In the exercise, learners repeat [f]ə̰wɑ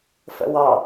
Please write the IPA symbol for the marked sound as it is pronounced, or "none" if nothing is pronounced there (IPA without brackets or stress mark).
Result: f